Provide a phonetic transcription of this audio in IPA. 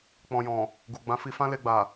k͡pɔ̃˨jɔ̃˨ | ɡu˨ɡ͡bã˨˦fi˧ fã˦le˧ɡ͡ba˨

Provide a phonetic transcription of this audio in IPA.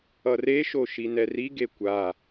ʌreʃo ʃinɛriɡe kʷa

